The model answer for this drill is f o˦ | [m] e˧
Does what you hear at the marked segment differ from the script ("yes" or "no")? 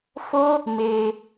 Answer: no